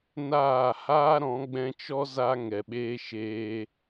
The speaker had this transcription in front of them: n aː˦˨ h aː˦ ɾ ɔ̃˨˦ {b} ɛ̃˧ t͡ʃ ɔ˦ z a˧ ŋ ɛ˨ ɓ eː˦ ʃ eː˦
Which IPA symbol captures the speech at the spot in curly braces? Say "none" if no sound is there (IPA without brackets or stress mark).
ɡ͡b